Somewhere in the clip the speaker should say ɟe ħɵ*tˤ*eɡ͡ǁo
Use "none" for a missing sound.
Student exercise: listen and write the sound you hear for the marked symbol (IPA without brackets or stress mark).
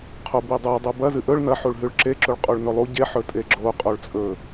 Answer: tʼ